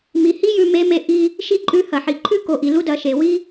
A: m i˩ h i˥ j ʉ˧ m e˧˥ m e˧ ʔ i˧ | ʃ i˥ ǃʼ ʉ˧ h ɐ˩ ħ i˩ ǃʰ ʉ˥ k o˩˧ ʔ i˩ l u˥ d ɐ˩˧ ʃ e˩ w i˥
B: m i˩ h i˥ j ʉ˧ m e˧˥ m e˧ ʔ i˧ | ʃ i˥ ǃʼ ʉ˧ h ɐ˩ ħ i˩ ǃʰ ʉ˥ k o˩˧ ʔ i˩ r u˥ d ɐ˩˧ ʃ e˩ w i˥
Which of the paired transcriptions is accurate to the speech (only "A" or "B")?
A